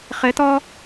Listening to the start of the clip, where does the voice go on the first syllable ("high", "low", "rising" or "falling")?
rising